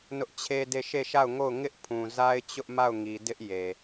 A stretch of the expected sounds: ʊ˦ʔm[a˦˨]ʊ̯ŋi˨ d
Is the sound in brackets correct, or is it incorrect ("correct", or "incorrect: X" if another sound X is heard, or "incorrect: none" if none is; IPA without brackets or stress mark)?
correct